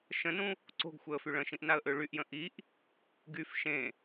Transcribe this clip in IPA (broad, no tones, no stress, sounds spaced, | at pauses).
ʃ ə̃ n ũ | ǀ o̤ ɡ xʷ ɛ ə̯ f y ɭ ə̃ ʃ ĩ ʔ n a ə̯ ʔ ø ɭ y ʔ j ə̃ ʔ i ʔ | ɡ y f ʃ ẽ